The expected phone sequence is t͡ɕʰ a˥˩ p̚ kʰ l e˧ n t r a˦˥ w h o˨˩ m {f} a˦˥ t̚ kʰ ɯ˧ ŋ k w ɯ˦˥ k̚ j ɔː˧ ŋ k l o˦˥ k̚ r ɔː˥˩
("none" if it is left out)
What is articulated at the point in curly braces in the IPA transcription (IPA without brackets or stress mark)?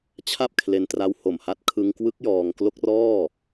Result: h